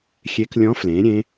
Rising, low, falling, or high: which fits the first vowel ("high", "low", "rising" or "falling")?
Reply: rising